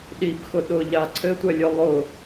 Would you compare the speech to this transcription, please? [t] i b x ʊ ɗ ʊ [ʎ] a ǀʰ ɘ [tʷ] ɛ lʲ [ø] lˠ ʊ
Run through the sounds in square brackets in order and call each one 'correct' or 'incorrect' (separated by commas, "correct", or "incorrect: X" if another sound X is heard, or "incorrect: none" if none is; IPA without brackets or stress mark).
incorrect: ɗ, correct, correct, incorrect: œ